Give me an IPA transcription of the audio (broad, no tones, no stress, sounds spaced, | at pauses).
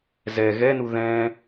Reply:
z ɛ ɣ ɛ n u ð ɛ̃